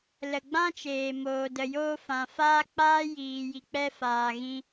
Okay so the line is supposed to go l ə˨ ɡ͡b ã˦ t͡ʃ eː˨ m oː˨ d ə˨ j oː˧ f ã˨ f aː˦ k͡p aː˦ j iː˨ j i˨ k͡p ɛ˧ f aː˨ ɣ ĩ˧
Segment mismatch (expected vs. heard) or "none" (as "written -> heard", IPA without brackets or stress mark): none